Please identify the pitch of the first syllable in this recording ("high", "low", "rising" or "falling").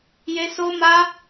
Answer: high